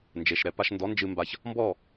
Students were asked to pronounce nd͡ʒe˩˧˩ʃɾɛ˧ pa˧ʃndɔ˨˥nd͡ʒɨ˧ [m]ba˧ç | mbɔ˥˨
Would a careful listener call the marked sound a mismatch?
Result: no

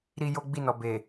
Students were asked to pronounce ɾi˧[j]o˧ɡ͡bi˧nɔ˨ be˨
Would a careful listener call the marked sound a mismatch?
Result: no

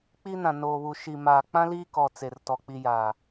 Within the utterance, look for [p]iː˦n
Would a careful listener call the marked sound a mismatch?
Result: yes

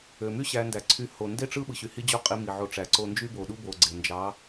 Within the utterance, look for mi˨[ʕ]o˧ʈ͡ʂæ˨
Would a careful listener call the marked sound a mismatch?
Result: no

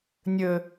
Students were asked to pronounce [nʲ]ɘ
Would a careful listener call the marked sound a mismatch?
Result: no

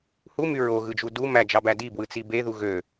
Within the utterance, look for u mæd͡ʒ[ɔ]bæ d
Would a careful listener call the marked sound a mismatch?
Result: yes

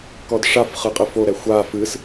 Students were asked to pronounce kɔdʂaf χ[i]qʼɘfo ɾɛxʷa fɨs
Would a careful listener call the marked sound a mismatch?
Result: yes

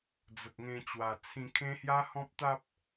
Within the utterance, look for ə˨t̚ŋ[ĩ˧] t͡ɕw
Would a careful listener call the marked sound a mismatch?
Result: yes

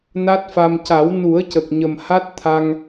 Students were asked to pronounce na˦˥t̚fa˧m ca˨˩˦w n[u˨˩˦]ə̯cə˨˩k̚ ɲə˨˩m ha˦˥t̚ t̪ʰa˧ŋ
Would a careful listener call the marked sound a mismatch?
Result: no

